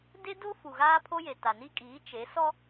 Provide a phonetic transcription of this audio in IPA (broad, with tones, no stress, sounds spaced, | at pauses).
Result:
d e˦ d o˦ f u˨ ɣ aː˦ pʰ o˦ j e˨ t a˨ n i˦ kʼ iː˨˦ t͡ʃ e˨˦ s ɔ˦